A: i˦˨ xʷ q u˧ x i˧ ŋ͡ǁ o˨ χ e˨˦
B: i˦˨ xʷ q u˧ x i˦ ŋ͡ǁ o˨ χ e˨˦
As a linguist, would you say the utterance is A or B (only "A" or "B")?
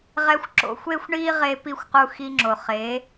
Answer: A